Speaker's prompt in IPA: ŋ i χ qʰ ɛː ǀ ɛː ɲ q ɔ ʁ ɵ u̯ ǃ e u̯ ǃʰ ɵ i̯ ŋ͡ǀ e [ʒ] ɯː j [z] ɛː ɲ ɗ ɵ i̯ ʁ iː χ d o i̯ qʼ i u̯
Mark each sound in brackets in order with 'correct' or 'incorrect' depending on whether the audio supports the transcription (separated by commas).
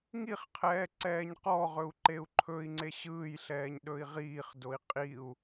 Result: incorrect, incorrect